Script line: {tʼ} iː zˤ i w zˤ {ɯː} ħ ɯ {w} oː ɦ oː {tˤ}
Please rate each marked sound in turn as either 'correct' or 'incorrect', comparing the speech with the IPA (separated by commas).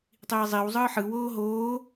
incorrect, correct, correct, incorrect